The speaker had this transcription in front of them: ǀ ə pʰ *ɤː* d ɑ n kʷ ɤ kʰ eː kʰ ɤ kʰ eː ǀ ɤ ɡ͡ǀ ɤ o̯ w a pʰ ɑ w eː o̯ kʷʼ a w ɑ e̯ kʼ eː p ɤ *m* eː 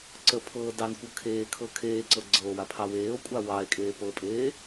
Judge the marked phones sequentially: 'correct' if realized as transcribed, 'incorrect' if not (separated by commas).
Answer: correct, incorrect